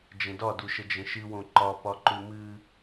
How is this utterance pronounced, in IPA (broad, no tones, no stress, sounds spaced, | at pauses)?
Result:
d͡ʒ ə̃ d ɒ d u ʃ ə d͡ʒ ə̃ ʃ ɨ w õ ǃ ɒ p ɒ ǃ ʉ m ɨ